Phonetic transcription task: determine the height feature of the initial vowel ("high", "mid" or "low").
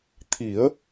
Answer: high